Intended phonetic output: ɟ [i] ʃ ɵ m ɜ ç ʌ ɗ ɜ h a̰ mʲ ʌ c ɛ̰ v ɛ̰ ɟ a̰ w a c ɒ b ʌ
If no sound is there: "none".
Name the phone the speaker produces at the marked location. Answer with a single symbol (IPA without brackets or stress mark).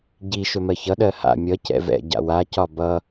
i